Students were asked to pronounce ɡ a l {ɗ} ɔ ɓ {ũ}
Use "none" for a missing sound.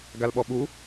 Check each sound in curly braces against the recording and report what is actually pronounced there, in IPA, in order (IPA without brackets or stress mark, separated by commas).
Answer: ɓ, u